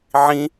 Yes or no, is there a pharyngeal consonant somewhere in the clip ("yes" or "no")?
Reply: yes